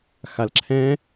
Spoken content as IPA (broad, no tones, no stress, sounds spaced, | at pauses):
x a l ǁʰ ɛ̃